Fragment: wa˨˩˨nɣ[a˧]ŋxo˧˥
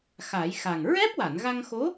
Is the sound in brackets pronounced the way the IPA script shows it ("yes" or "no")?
yes